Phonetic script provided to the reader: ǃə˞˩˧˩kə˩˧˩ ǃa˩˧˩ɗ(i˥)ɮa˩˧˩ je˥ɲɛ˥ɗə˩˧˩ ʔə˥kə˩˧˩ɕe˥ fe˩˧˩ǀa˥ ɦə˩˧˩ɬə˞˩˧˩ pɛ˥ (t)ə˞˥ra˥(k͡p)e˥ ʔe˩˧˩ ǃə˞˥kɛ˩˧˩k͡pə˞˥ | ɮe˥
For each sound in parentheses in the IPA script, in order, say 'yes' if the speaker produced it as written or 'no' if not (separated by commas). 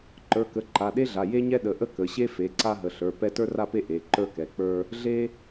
no, yes, no